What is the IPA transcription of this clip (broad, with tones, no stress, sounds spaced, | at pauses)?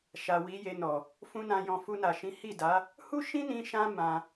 ʃ a˨ w i˨˦ j e˧ n ɔ˨ | f ũ˦ n ã˧ j ɔ̃˧ f u˧ n a˨ ʃ ĩ˨˦ h i˦˨ d a˨˦ | h u˦ ʃ ĩ˦ n ĩ˧ ʃ ã˦ m ã˧